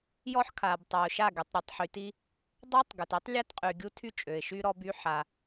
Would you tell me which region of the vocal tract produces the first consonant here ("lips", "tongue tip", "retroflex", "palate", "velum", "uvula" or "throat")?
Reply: palate